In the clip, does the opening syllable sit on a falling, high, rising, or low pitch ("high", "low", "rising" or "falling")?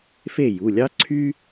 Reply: falling